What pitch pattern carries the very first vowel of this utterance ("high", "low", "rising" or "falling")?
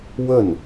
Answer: falling